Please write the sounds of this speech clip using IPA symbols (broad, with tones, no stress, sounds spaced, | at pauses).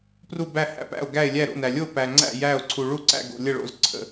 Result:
p r u˥˩ b æ˥˩ h æ̰˥˩ p æ̰˥˩ o̯ ɡ æ˥˩ e̯ lʲ æ˥˩ ɾ o̰˥˩ n æ˩ lʲ o˥˩ p æ˩ ŋ͡ǀ æ̰˥˩ j æ˥˩ o̯ ǀʰ u˩ ɭ u˥˩ ǀ æ̰˥˩ ɡ o̰˩ lʲ ə˥˩ ɭ o̰˥˩ z ǀʰ ə̰˩